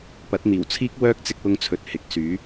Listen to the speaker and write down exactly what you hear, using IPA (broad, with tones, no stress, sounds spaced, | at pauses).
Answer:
p ɐ˨˥ t̚ n̪ iː˨˩ w t͡sʰ iː˥ k̚ w œː˥ k̚ t͡s ɪ˧ k̚ w ʊ˧ ŋ t͡sʰ ɵ˨ t̚ h ɪ˨˥ k̚ s yː˨˥